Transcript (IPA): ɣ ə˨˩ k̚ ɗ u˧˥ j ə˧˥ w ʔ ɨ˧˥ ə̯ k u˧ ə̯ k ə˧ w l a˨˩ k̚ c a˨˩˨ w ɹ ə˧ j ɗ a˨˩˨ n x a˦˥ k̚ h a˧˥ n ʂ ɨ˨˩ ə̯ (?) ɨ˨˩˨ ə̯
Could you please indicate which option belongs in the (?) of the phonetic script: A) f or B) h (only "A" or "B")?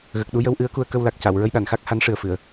A